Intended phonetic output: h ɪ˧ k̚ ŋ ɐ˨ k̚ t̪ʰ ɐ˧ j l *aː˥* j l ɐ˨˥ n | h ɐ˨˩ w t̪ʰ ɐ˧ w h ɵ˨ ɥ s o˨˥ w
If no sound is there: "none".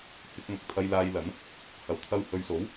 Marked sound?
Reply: aː˧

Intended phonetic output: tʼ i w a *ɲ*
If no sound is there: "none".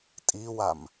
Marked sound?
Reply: m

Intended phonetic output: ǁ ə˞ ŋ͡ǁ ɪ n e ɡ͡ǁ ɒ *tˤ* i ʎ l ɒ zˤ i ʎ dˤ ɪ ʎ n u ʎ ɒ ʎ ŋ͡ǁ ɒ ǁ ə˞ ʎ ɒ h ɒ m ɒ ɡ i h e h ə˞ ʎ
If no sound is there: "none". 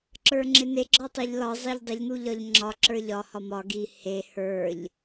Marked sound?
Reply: tˤ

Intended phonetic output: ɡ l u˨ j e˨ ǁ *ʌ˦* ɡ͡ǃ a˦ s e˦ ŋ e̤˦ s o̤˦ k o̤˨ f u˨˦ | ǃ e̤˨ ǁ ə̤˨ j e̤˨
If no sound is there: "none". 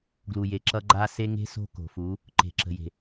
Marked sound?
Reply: ʌ˦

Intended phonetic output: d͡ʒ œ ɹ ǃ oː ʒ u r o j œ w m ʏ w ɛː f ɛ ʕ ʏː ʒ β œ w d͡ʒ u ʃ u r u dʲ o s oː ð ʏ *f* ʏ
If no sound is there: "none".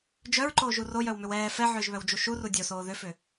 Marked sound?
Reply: f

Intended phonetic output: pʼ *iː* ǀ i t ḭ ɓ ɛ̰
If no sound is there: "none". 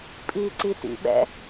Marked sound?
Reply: iː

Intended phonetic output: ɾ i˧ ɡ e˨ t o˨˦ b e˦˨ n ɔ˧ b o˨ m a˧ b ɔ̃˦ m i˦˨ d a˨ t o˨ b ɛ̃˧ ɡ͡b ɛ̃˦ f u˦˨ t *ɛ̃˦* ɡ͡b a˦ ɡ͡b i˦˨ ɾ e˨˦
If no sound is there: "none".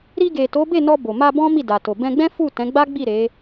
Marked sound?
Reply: ɛ̃˨˦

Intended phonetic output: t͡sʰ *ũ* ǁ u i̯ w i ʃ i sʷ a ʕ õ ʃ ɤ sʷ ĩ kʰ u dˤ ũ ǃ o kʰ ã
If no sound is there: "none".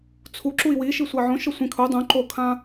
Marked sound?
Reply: u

